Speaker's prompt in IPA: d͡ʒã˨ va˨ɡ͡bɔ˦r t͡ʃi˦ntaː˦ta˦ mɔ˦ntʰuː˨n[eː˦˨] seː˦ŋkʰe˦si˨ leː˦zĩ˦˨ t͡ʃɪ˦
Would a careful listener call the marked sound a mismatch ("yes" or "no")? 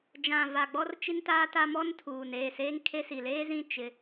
no